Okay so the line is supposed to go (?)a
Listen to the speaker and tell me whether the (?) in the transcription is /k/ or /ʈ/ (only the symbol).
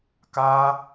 k